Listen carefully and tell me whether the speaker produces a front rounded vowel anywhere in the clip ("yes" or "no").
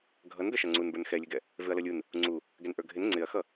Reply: no